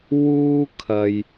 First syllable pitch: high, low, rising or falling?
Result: high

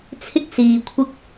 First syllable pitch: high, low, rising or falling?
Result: high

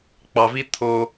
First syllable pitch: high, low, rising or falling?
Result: low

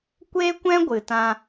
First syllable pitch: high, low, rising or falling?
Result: high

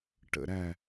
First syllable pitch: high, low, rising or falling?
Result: falling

